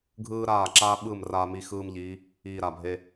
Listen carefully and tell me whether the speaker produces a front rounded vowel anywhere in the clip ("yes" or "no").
no